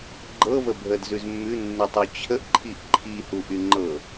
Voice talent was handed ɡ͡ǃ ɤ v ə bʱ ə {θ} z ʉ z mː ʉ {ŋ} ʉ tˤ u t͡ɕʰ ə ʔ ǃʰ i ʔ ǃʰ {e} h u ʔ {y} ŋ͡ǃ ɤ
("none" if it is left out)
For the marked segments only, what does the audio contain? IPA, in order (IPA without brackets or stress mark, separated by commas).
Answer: d, nː, i, y